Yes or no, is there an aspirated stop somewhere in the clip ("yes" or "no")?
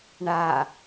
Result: no